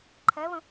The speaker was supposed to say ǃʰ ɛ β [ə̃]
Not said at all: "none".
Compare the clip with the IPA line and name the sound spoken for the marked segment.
ə̃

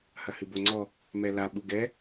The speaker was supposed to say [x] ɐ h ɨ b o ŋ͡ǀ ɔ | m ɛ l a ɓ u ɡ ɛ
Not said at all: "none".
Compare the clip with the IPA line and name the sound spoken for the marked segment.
h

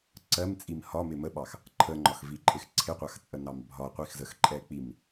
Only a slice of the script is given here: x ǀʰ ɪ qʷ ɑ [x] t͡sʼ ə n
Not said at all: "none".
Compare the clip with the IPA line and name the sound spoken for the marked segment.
x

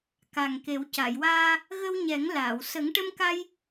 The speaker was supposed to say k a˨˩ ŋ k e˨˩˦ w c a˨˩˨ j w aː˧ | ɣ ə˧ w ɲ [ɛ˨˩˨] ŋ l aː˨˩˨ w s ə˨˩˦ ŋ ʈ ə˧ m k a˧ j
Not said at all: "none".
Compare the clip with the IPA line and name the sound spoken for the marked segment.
ɛ˨˩˦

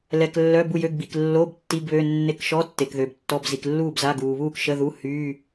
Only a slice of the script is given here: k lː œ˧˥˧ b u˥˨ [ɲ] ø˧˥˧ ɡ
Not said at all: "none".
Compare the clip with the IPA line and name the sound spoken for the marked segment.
j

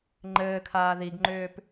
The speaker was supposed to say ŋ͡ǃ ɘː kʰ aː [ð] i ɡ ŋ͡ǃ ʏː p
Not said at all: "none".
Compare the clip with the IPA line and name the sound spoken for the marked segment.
ð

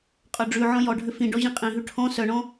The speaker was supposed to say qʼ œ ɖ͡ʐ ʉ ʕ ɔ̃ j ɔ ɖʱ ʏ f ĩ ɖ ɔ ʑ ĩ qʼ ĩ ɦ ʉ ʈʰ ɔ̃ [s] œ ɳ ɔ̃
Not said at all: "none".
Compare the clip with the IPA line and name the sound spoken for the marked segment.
s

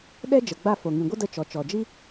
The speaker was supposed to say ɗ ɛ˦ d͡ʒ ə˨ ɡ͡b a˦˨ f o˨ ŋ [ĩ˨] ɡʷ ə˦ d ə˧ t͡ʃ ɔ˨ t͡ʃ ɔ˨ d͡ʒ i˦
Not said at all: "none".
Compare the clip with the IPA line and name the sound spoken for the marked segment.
ĩ˨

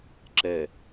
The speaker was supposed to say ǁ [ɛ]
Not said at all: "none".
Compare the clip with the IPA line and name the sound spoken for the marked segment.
ɛ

